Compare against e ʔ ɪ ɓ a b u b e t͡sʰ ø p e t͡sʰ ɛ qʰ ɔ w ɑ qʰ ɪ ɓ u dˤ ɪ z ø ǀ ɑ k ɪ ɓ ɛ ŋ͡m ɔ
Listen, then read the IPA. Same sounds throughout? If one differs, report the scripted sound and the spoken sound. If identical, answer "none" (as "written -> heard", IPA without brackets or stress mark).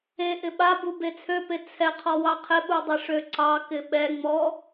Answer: z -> ʂ